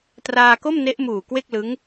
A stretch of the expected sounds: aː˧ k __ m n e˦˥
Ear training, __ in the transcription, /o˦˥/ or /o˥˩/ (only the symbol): o˥˩